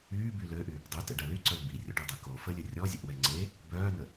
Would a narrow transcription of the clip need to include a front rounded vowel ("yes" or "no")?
yes